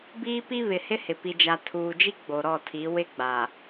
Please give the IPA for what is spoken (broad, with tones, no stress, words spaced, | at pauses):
biː˦pi˦ βɪ˨hɪ˦ hɪ˨ pi˨d͡ʒa˨ tʰuː˨d͡ʒi˦ ɡ͡bo˨ɾɔ˦˨tʰi˨˦ wɪ˦ɡ͡ba˨